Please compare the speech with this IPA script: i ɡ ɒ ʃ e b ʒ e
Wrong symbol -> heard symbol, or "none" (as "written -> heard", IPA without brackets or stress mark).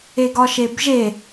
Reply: i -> e